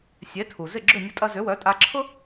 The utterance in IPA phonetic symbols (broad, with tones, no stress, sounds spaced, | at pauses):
sʲ e˩˥ tʰ u˩ z ɪ˥˩ ɡ͡ǁ ʏ˥˩ nʲ ʊ˧ tʼ ɐ˧ z ʏ˩˥ w œ˩˥ tʼ a˧ ǁʰ ʊ˥